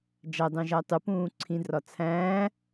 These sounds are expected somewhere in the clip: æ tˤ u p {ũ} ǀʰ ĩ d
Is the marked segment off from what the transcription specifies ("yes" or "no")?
yes